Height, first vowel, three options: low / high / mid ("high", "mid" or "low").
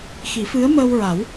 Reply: high